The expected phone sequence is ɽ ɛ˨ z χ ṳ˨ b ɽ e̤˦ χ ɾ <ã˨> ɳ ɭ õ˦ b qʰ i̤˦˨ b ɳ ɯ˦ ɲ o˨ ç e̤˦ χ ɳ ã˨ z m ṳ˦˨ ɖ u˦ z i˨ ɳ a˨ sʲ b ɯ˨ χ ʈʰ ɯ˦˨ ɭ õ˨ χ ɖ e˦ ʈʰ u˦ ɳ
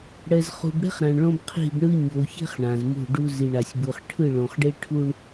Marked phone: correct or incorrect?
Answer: correct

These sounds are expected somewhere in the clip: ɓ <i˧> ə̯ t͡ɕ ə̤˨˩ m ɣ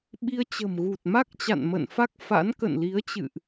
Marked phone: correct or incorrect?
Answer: correct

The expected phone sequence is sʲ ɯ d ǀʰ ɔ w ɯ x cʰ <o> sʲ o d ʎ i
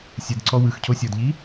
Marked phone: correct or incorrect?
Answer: correct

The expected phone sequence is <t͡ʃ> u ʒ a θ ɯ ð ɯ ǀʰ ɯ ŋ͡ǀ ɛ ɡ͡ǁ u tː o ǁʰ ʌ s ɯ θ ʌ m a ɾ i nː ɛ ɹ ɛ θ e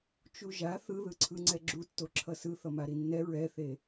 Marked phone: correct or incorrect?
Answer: correct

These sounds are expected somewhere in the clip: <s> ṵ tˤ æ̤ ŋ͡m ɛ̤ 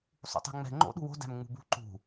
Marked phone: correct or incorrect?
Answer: incorrect: sˤ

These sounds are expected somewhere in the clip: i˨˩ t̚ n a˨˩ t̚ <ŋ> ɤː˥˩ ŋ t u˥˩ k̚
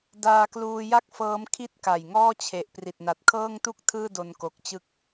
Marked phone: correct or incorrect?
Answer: incorrect: kʰ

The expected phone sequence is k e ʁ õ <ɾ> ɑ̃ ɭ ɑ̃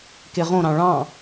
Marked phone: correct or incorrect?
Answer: correct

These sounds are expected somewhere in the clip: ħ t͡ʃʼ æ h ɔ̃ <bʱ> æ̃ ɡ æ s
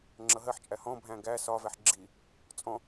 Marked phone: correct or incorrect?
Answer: correct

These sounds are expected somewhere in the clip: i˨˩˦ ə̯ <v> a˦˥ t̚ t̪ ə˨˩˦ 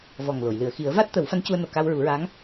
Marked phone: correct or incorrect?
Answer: correct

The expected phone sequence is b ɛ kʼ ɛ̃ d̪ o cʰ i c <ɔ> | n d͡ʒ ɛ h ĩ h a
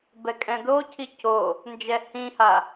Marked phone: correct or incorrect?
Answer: incorrect: o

